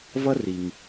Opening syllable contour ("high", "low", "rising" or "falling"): high